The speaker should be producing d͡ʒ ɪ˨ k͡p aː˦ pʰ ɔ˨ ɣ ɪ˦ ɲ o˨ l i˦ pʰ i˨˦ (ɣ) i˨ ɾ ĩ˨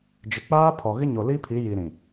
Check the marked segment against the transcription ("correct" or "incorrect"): incorrect